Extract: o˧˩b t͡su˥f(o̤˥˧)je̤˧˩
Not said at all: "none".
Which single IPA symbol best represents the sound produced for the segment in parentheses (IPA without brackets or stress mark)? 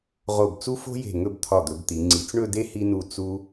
o̤˥